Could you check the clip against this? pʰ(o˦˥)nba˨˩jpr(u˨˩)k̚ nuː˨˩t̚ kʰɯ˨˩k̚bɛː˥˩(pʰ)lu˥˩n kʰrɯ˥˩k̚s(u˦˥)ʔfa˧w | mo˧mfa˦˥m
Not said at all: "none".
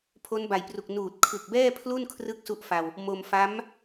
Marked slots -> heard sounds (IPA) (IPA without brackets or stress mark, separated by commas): o˦˥, u˨˩, pʰ, u˦˥